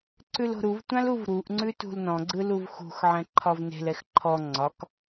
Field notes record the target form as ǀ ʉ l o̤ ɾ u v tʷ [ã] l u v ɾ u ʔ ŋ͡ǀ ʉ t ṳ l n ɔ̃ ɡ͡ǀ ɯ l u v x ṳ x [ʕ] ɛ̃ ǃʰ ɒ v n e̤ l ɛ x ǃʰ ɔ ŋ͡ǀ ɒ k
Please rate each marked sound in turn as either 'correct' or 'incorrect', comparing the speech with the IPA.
correct, correct

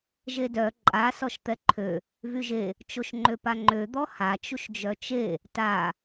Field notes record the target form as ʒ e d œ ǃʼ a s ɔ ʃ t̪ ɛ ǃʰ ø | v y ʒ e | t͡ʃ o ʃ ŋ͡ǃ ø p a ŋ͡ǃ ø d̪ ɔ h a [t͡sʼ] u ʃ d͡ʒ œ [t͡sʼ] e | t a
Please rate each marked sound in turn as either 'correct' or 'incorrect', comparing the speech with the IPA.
incorrect, incorrect

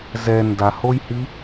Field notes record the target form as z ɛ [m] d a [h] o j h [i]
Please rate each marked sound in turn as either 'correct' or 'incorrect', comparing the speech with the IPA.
incorrect, correct, correct

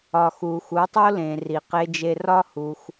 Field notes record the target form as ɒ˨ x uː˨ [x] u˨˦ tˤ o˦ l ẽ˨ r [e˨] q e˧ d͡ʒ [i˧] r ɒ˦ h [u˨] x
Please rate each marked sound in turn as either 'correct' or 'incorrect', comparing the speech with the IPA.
correct, incorrect, incorrect, incorrect

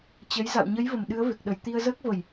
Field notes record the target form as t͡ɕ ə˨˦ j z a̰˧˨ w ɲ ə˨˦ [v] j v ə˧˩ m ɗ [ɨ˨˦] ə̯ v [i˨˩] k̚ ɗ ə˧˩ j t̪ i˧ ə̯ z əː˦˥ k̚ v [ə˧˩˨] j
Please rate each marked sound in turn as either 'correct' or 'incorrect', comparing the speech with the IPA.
incorrect, correct, incorrect, correct

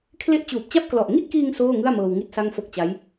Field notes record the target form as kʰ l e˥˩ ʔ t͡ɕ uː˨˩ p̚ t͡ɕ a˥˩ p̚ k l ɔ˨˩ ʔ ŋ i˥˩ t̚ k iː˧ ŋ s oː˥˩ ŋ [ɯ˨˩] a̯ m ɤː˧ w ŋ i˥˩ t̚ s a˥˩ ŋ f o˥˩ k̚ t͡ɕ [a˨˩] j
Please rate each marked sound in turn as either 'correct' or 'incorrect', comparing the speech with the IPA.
incorrect, incorrect

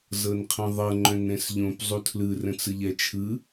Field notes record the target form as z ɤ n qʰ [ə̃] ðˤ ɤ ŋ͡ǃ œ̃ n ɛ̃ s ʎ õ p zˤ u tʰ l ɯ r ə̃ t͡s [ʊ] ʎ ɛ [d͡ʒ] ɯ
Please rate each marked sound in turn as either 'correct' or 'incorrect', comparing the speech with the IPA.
correct, incorrect, incorrect

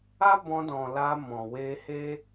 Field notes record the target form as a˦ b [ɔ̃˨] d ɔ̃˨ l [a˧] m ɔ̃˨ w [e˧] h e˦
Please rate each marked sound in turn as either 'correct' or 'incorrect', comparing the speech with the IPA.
incorrect, correct, correct

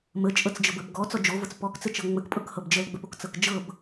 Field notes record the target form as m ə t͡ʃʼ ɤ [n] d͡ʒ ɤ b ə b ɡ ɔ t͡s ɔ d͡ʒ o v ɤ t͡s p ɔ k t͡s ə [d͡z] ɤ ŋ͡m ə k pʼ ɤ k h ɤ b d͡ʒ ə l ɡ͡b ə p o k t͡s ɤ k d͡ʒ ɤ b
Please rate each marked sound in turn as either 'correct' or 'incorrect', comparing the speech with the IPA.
incorrect, incorrect

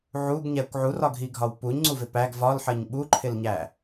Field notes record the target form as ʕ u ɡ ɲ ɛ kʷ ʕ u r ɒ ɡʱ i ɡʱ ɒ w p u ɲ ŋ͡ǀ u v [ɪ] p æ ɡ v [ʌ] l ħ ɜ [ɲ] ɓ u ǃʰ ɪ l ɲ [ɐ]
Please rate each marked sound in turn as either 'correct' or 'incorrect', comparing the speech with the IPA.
correct, incorrect, correct, incorrect

